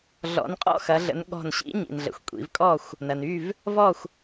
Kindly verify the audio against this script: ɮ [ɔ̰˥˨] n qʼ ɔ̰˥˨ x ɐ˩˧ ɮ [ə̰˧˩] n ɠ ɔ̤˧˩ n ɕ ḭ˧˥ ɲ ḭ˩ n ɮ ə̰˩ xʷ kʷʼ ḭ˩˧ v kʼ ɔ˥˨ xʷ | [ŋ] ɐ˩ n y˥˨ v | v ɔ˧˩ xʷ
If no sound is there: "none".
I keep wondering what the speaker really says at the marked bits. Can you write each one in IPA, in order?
ɔ̰˩˧, ə̰˩˧, n

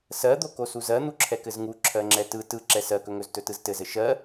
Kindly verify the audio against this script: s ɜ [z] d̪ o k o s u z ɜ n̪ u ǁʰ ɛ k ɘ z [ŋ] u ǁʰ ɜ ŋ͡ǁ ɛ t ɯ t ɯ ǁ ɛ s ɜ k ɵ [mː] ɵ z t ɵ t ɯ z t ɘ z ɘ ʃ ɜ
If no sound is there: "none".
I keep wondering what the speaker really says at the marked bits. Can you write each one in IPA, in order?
none, ŋ, ŋ

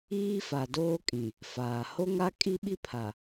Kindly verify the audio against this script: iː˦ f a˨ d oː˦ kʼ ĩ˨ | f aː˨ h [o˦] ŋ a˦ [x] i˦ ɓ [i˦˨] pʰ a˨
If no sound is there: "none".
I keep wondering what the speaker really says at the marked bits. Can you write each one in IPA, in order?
o˦, kʼ, i˦

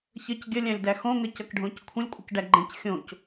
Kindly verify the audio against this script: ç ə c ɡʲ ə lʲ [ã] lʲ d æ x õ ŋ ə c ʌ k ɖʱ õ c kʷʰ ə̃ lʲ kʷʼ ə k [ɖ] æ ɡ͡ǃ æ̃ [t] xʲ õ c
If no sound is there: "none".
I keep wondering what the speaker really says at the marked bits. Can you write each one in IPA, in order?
æ̃, ɖ, c

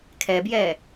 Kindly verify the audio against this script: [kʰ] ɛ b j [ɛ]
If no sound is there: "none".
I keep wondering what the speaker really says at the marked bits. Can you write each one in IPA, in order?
kʰ, ɛ

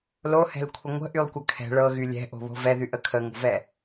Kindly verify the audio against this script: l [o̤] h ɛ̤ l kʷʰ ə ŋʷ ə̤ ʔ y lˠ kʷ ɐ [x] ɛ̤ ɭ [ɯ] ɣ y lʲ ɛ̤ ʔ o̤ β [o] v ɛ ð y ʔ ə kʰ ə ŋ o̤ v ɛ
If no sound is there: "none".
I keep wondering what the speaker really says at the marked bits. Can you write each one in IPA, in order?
o, kʰ, ɤ, o̤

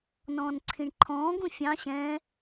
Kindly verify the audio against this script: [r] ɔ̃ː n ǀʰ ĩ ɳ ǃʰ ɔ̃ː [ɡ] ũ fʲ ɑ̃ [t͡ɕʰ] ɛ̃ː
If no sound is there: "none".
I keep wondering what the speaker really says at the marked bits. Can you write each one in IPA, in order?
n, ɡ, ɕ

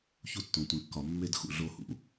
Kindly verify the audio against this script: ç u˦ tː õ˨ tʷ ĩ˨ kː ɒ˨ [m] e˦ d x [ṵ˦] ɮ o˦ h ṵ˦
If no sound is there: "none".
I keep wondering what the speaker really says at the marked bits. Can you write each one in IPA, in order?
mː, ṵ˨

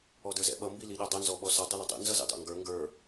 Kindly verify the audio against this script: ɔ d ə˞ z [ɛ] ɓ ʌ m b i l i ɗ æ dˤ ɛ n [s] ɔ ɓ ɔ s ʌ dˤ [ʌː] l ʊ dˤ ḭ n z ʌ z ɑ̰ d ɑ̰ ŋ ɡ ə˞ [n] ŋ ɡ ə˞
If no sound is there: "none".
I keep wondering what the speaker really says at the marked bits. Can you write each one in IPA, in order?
ɛ̰, z, ʌ, none

